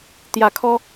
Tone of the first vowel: low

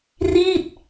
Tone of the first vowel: falling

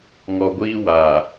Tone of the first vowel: low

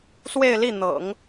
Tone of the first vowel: falling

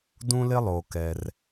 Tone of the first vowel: high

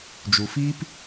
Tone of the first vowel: low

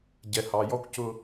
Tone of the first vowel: low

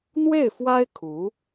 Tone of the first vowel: falling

